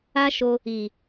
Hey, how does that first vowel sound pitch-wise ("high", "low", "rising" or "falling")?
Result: high